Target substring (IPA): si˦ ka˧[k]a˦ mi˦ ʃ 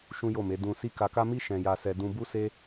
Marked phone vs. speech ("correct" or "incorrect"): correct